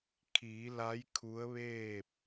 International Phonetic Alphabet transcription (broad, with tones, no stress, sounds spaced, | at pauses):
kʰ iː˩˧ l a˧˥ j kʰ u˧˥ ə̯ ʋ eː˥˨ p̚